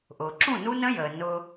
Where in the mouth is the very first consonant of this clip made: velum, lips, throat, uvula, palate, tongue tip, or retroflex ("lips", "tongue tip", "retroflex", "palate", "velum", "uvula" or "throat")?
throat